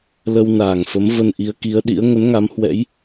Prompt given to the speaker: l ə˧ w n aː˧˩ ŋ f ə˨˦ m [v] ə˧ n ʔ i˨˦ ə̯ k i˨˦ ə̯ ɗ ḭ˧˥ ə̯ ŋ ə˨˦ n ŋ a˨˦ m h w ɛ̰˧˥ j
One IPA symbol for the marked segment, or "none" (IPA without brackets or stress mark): v